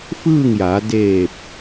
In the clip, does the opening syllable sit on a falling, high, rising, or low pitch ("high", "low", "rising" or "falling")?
falling